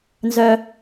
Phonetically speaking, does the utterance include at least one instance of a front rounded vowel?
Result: yes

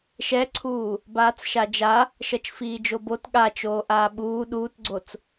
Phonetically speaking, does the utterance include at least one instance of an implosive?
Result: yes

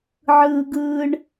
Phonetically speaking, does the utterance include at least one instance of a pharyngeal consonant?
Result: yes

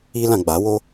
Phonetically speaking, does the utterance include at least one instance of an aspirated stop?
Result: no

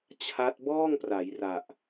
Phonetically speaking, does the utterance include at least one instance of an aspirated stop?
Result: yes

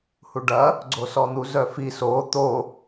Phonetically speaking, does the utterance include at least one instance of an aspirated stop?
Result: no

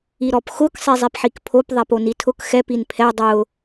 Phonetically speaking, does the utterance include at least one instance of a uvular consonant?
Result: no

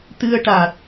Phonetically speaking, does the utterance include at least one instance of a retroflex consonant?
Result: yes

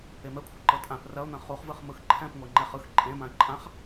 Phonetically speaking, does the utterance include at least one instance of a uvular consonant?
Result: yes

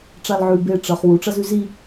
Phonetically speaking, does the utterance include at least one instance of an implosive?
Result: no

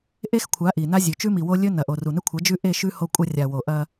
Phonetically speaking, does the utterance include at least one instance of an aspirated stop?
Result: yes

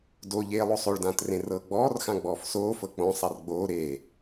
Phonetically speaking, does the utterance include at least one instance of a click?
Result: no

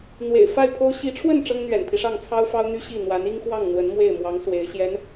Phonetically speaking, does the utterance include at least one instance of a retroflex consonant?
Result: yes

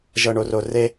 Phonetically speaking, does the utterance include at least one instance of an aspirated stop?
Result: no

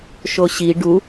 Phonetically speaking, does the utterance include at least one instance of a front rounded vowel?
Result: no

